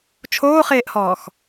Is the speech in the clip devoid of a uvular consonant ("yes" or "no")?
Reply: no